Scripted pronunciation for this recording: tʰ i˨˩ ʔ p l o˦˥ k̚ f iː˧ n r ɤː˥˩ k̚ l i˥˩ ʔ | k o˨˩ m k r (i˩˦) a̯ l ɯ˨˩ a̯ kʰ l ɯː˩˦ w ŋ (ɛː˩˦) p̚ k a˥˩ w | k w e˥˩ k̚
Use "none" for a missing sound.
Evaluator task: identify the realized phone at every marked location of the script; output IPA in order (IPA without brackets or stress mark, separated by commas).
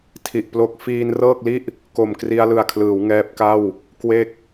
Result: i˧, ɛː˦˥